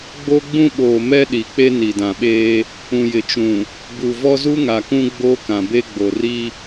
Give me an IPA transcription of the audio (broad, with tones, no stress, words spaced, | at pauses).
ɡ͡bo˦ɡ͡bũ˦ɓoː˨ mɛ˦ɗi˨k͡pe˦ ni˨dã˨ɓeː˦ | ũ˨jɪ˨t͡ʃũ˨ | bu˨ vɔ˦zu˦ŋa˨kũ˦ ɡ͡boː˦kã˨be˦ ɡ͡bo˨ri˦